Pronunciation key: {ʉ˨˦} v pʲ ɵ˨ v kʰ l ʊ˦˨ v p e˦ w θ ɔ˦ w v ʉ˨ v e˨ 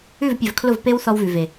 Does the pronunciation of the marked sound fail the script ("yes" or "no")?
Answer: yes